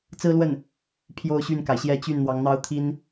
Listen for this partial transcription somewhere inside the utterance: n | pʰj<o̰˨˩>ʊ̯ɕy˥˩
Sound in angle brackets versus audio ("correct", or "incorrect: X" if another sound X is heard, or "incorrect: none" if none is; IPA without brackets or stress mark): incorrect: o˥˧